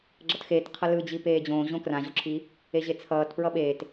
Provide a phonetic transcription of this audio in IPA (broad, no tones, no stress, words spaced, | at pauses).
ɡ͡ǁʌtxeːt qʰʌlɯ d͡ʑipeːd͡ʑõː ʑõkrãʑoǁʰi | eʑet͡sʰʌːt pɹʌɓeːt